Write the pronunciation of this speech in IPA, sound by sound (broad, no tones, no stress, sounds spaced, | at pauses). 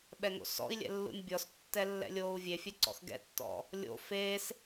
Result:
ɓ ɛ ŋ o̰ s ɔ̰ i̯ lʲ ɛ̰ lː ṵ nʲ bʲ ɔ s tː ɛ lː ɛ̰ lʲ oː u̯ vʲ e fʲ ɛ ǀ ɔ̰ x ɡ ɛ̰ tː ɔ̰ | lʲ o̰ f e s